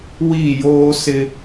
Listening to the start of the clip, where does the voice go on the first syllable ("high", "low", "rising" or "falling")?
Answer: falling